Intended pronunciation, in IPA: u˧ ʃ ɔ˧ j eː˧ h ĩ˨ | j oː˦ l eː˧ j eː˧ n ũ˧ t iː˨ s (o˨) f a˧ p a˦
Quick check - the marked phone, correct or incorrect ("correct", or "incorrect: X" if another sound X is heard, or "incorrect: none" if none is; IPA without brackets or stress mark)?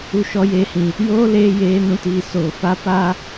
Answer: incorrect: oː˨